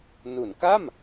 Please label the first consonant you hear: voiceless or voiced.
voiced